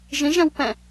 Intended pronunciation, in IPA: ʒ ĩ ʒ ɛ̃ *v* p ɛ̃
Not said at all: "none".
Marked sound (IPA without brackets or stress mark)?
w